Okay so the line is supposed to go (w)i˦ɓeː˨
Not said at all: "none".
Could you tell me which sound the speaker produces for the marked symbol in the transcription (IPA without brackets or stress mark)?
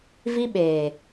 v